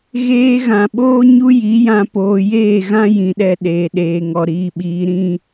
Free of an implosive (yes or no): no